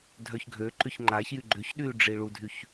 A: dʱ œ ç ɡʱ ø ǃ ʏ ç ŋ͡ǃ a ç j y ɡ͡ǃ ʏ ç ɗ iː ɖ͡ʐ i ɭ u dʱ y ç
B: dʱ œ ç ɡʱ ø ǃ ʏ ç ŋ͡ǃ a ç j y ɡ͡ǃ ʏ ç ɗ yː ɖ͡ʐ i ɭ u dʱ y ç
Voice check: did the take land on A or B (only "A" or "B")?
B